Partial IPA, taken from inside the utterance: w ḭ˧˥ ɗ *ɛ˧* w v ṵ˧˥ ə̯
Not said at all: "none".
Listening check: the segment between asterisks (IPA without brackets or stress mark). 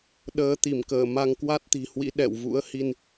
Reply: ɛ̰˧˨